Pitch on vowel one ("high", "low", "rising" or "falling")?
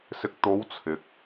low